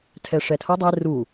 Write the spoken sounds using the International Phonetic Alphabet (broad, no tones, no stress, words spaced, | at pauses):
tʰɛʂɛtʰɤ dˤɛ ru